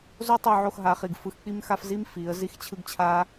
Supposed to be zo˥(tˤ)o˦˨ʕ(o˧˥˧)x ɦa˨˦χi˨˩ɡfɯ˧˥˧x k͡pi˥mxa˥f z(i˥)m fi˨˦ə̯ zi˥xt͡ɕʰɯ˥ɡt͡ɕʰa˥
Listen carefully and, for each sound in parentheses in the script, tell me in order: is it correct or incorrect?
correct, incorrect, correct

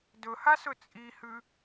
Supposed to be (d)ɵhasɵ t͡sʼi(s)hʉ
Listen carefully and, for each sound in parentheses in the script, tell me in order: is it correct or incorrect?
correct, incorrect

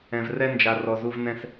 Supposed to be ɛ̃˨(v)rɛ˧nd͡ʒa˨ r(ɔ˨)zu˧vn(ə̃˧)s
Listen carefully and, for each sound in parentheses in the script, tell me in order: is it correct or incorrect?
correct, correct, incorrect

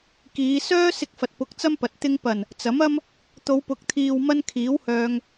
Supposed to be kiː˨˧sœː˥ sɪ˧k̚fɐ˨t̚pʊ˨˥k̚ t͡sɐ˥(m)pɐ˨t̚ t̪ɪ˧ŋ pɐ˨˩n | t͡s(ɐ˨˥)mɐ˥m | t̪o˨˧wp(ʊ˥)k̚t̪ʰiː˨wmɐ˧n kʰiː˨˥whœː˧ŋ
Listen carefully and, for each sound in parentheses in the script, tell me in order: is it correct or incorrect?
correct, correct, incorrect

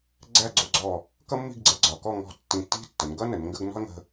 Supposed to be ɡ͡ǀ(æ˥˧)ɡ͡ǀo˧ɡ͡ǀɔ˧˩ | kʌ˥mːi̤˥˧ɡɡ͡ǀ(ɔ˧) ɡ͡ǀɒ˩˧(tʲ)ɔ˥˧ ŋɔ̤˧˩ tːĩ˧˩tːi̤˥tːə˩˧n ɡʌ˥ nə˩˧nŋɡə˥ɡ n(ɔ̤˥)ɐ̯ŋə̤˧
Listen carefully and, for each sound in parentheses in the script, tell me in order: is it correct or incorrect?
correct, incorrect, incorrect, correct

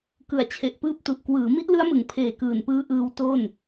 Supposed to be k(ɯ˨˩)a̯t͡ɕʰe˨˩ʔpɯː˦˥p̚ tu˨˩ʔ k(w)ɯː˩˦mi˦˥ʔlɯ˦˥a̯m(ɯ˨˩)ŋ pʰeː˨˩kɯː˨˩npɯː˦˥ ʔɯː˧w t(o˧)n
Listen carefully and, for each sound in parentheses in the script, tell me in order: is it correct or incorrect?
correct, correct, incorrect, incorrect

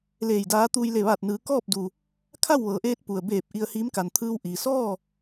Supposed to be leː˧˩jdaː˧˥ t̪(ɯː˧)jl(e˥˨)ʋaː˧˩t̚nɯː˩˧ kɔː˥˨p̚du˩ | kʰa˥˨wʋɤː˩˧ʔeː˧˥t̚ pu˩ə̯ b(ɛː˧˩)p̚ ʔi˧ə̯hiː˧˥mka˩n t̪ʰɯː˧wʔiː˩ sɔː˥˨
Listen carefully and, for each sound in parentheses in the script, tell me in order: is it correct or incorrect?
incorrect, incorrect, incorrect

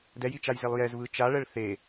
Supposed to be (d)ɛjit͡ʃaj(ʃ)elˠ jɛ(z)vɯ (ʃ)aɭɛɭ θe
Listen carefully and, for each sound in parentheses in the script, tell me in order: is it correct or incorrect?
correct, incorrect, correct, incorrect

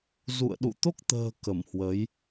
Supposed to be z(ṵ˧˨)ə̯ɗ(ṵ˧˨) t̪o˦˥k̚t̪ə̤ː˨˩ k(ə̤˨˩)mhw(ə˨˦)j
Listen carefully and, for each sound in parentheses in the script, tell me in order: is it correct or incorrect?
correct, correct, incorrect, correct

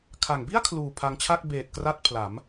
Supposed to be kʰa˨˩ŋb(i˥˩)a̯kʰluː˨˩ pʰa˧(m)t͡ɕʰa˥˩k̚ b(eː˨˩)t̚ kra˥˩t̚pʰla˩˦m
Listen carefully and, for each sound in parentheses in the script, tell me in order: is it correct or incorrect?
correct, incorrect, correct

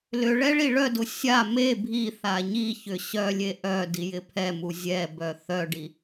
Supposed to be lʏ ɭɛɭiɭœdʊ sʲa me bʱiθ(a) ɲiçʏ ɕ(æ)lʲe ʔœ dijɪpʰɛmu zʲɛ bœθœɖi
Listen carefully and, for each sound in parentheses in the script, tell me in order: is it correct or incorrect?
correct, incorrect

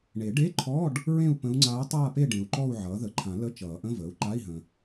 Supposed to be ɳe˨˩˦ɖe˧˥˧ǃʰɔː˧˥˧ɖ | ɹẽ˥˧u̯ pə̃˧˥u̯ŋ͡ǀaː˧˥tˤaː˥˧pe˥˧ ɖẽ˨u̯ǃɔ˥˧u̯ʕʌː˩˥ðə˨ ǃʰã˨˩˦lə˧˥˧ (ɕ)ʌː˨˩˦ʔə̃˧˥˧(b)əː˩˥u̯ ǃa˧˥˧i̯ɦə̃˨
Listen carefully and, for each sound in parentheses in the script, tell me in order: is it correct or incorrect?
incorrect, incorrect

